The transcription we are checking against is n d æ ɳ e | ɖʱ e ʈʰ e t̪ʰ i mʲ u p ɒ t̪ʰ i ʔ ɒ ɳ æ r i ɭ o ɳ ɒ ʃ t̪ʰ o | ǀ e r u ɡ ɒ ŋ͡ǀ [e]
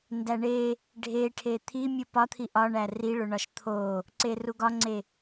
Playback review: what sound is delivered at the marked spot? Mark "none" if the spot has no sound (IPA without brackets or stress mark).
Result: e